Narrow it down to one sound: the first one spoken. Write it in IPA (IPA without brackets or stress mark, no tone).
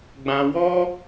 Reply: ɡ͡b